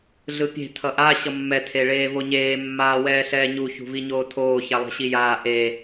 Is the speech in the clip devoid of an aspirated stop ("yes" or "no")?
no